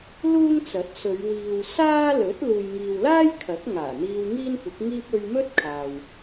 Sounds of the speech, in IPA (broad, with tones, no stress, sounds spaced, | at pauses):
l uː˥ ŋ t͡s ɐ˨˥ t̚ s ɵ˨˧ ɥ w iː˨ w s aː˥ l ɵ˨˥ t̚ l uː˨ j ŋ iː˨ w l aː˥ j kʰ ɐ˨˥ k̚ ŋ aː˨˩ n̪ iː˧ w ŋ iː˥ n kʷ ɪ˨˥ k̚ ŋ iː˥ p̚ ɵ˧ ɥ m ɵ˥ t̚ kʰ aː˨ w